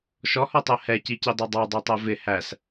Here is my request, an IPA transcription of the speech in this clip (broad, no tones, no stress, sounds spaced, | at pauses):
ʃ ɔ h ɔ tˤ ɜ h ɛ c i c i dˤ ɑ dˤ ɑ dˤ ɜ tˤ æ v ɪ h æ s